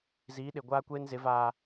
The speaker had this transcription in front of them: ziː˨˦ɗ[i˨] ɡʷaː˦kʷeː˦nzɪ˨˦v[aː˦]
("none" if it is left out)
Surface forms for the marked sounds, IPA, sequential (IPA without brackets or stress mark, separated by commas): ɪ˨, aː˨